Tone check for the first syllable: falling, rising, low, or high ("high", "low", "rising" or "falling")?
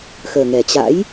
low